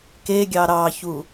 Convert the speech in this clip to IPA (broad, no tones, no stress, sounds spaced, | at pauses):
k e ɡʲ ɑ ɾ ɑ ç u